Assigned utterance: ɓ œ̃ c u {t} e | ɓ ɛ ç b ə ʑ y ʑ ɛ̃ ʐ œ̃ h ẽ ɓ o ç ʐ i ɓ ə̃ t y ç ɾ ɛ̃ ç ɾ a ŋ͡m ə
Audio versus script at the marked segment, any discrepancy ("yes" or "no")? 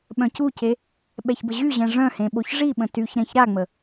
yes